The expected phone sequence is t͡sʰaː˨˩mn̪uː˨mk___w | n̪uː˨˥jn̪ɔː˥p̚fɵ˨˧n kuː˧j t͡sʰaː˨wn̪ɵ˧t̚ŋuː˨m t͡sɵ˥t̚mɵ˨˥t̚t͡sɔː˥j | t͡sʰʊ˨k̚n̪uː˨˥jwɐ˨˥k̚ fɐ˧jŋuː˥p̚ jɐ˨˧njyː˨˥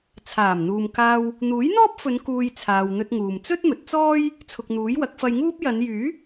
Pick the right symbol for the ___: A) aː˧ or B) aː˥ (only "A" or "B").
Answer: A